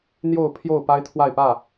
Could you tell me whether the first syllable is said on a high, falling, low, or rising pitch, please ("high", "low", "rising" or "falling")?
falling